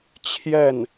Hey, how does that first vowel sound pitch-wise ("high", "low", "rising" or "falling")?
falling